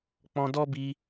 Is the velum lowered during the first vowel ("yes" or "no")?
yes